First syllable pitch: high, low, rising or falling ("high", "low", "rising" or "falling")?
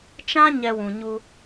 high